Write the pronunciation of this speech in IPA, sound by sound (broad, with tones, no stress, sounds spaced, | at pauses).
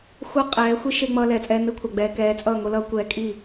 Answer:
xʷ ʌ˦ qʼ ɛː˨˦ xʷ i˦ ʃ e˧ ŋ͡m ʌː˧ l ɛː˨ t͡sʼ ɛː˧ n ɯ˦˨ kʷʰ a˨ ɡ͡b ɛː˨ k ɛː˨˦ t͡sʼ ʌː˦˨ ŋ o˦ l ʌː˦ kʷ ɛ˧ kʼ i˦˨